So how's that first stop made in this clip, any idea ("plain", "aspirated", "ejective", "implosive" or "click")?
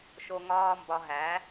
plain